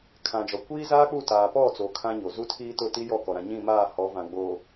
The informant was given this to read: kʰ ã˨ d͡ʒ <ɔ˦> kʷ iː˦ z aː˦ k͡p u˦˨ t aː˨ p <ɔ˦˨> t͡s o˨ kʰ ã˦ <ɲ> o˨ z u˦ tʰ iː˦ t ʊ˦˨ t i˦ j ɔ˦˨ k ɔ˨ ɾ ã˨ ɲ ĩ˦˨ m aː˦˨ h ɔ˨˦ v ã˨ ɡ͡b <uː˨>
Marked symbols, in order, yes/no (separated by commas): no, yes, yes, no